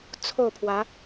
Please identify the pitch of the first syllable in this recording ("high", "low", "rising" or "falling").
falling